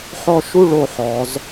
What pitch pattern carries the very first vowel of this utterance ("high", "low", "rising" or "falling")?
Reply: high